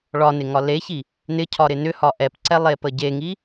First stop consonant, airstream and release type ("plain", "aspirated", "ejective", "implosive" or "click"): aspirated